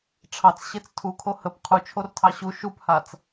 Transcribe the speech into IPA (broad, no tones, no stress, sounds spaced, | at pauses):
ʈ͡ʂʰ ɑ t͡s ɕ e t͡s tʰ u kʰ o h ə p qʰ u t͡ʃʰ o r tʰ ɑ ɕ u ʃ u p h a t͡s